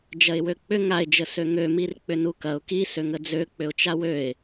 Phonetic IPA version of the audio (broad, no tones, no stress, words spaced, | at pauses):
d͡ʒɐɪ̯wøk͡pʏ ŋaɪ̯d͡ʒə søŋømirk͡pʏ nukɐʊ̯ kisøŋə d͡zøk͡pʏʊ̯t͡ʃa wøɪ̯